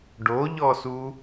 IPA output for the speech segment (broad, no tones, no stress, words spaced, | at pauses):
ɖoʎɔsu